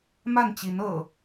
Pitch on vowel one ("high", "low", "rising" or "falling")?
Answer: falling